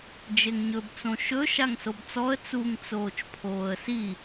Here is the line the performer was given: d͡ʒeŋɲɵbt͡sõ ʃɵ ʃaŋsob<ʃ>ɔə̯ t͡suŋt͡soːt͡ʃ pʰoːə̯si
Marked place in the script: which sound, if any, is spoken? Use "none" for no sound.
t͡s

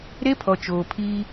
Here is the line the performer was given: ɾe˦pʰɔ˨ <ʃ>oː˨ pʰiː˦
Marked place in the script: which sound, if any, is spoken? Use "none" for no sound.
t͡ʃ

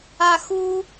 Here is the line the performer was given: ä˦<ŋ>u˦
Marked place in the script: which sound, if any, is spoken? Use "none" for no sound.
x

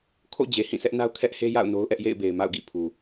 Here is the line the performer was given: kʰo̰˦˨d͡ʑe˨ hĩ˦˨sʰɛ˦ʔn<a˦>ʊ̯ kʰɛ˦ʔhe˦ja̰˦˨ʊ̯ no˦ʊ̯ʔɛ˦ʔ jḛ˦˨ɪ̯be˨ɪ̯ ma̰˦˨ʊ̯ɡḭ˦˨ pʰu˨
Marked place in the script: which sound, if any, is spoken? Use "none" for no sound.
a˦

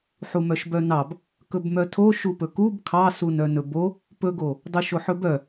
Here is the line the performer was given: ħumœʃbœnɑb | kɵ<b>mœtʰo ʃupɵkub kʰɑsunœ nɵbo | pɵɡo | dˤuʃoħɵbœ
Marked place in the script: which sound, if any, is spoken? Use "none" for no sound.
b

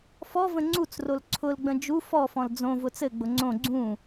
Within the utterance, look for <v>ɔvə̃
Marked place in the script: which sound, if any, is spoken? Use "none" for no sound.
f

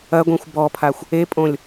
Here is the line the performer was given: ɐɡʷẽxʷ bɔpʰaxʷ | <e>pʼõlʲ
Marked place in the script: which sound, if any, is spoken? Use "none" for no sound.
e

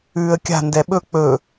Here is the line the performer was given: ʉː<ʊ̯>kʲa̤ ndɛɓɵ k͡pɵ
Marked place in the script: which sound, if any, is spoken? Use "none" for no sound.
ə̯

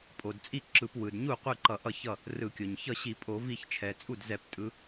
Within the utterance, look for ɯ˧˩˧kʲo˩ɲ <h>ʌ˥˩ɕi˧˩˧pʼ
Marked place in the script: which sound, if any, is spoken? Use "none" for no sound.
ç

